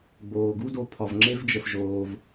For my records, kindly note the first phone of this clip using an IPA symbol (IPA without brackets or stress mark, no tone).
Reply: ɡ͡b